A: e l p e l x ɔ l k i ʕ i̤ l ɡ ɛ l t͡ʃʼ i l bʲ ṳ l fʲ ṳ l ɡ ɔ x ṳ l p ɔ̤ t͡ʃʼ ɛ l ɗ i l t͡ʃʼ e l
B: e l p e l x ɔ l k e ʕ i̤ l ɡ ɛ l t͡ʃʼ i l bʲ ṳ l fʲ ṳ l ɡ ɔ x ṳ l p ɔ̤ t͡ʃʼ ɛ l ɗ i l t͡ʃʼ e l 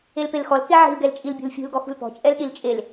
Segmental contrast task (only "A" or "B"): B